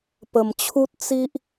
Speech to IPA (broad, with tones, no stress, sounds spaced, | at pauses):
p ə˨˩ m t͡ɕʰ u˦ t̚ t͡s i˦ ʔ